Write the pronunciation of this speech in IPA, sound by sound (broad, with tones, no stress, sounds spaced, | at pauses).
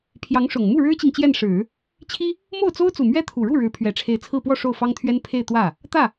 pʰ j ɑ˧˥ ŋ ʂ ʊ˨˩ ŋ m u˥˩ ɻ ɻ̩˥ t͡ɕ i˨ ŋ t͡ɕ j ɛ˥˩ n ʂ ɻ̩˨˩˦ | t͡ɕʰ i˥ | m o˥˩ ʊ̯ t͡s o˥ ʊ̯ t͡s u˨˩ m ɥ ɛ˥ t̪ʰ u˨˩ ɻ u˥˩ ɻ ɻ̩˧˥ pʰ ɥ ɛ˨˩ ʈ͡ʂʰ e˧˥ ɪ̯ t͡sʰ ɹ̩˥˧ p w ɔ˥˧ ʂ o˥˩ ʊ̯ f ɑ˥ ŋ t̪ʰ ɥ ɛ˥ n pʰ e˥˧ ɪ̯ t̪ w ä˥˩ | t̪ ä˥˩